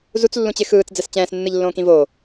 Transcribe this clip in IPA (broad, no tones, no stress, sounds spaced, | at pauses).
z u t͡s lː ũ t͡ɕ ɪ x ɯː t͡s d͡z ɛ s t͡ɕ ɛ̃ː s nː ɯ ʎ lː õː k ĩ v oː